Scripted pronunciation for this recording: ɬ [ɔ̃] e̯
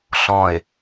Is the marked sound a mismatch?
no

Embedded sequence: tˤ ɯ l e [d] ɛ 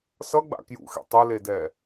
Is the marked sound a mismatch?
no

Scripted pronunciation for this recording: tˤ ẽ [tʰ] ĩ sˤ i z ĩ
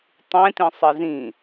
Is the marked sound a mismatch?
yes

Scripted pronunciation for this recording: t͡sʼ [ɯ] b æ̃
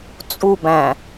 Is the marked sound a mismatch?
yes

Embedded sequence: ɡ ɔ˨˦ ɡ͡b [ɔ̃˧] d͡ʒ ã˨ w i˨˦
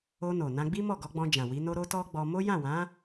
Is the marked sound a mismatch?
no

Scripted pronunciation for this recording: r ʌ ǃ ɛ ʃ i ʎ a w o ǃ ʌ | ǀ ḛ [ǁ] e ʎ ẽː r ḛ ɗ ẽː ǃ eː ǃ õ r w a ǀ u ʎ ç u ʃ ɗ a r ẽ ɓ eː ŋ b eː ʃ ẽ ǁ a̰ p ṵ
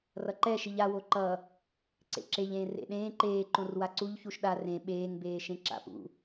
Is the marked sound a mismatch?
no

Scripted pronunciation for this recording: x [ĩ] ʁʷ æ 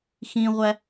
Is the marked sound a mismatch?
no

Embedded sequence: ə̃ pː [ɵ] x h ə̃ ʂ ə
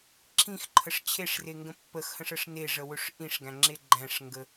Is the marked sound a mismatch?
yes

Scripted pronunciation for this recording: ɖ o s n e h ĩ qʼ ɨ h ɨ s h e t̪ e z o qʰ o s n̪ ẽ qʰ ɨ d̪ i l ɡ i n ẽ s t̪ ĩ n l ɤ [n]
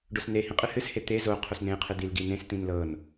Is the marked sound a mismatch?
no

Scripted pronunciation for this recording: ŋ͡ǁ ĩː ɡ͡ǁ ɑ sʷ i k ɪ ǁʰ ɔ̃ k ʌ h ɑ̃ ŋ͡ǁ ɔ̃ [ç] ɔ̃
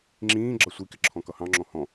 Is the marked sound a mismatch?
yes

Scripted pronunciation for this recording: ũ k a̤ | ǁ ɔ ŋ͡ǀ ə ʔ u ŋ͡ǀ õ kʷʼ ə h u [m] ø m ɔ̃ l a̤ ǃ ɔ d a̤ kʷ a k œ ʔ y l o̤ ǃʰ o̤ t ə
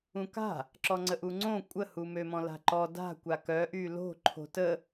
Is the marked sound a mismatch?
no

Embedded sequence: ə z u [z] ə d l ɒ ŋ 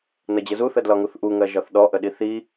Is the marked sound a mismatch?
yes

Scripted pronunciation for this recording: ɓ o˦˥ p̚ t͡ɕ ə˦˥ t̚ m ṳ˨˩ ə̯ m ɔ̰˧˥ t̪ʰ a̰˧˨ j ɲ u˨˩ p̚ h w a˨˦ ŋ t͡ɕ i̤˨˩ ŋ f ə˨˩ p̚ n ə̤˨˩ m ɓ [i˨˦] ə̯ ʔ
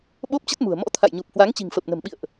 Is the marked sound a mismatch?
yes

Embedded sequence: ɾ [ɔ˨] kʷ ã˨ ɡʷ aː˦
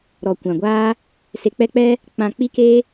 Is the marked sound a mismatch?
no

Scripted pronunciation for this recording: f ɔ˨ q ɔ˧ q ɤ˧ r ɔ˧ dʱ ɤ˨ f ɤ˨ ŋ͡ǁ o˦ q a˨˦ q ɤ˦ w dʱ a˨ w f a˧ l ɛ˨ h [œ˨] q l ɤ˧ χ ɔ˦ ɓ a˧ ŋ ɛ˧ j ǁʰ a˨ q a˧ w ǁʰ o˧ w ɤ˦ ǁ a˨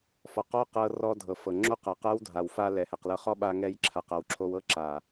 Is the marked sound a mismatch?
yes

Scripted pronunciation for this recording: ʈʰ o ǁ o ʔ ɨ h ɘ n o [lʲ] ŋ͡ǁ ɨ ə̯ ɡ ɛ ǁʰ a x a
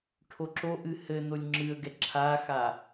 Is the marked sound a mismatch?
no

